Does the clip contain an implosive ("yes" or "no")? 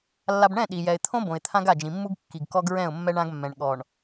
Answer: yes